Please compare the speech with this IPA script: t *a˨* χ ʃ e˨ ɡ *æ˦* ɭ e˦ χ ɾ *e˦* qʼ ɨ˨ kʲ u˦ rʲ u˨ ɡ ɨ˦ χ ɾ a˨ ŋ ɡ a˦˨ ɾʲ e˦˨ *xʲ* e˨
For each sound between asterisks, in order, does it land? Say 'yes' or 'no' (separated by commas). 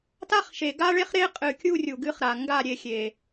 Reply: no, no, yes, yes